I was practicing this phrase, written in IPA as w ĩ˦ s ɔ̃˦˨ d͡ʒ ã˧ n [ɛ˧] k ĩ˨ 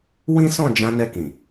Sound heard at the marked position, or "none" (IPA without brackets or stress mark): ɛ˧